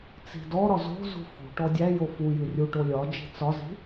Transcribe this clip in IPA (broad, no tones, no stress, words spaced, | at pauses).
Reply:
t͡si̤dɔɾɒ zo̤zṳ fṳʈɔ dʲæjo fujɨ rʲuʈo lʲɒ d͡ʒi̤t͡sɒzi̤